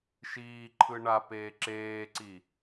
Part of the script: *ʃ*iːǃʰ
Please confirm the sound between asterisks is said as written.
yes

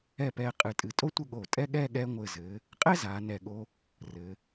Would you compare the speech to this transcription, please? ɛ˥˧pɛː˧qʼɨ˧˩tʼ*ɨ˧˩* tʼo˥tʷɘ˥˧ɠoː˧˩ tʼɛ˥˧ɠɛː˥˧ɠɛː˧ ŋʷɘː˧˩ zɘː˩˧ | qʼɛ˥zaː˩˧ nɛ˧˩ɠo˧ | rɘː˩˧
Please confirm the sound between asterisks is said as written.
yes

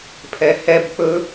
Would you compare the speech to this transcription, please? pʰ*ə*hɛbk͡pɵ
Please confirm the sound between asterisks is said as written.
no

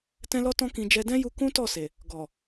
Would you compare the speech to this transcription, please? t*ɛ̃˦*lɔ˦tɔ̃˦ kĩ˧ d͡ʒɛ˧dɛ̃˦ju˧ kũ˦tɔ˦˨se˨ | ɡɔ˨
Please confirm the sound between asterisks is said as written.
yes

